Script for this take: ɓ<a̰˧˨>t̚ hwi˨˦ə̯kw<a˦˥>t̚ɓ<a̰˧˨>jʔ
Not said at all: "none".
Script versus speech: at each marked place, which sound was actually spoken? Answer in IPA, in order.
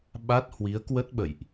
a˦˥, ə˦˥, ə̰˧˨

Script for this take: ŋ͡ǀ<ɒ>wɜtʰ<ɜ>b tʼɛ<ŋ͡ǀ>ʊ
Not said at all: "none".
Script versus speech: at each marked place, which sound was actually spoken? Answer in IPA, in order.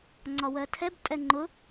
ɒ, ɛ, ŋ͡ǃ

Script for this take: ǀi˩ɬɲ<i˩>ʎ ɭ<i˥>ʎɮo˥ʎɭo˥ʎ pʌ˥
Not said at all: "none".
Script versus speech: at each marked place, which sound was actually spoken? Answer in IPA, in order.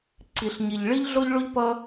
i˩, i˥

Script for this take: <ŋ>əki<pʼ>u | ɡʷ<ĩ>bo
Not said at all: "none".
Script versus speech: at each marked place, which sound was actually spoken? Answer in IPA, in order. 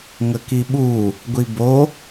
ŋ, ɓ, i

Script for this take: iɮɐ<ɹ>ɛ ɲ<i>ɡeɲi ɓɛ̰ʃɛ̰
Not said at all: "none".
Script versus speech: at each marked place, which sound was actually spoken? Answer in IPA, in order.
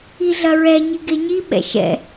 ɹ, i

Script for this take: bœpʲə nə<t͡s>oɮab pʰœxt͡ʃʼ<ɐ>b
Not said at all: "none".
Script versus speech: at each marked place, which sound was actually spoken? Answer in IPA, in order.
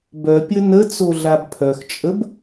t͡s, ə

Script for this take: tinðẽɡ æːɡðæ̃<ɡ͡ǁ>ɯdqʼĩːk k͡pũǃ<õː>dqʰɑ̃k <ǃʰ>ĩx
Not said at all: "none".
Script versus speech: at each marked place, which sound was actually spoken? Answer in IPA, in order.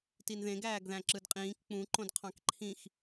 ǁ, õ, ǃʰ

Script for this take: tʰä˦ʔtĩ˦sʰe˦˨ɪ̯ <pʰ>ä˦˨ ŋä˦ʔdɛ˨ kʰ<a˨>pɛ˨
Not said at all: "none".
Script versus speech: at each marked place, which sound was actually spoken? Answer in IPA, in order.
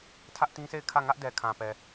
kʰ, ã˨

